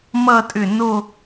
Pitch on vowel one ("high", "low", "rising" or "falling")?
falling